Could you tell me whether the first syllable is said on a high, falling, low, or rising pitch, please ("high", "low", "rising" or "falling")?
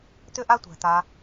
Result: high